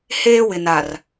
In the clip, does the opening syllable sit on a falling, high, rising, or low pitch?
high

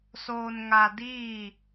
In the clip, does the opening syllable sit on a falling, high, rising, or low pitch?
low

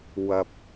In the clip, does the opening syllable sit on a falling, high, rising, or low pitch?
low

